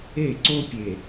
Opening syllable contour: falling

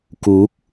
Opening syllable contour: rising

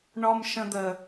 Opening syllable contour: high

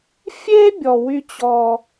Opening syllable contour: high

